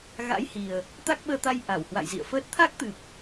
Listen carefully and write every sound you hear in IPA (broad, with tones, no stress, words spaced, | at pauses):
ɣa̰˧˥jhi˨˩ə̯ | t̪a˦˥k̚ɓəː˧t̪a˧j ʔa˧˩w hwa̰˧˨jzḭ˧˨ə̯fəː˦˥t̚ t̪ʰa˦˥k̚t̪ɨ˨˩p̚